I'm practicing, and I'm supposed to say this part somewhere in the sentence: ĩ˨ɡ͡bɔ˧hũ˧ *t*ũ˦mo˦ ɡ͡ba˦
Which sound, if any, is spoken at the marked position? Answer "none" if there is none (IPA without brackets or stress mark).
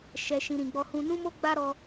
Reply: n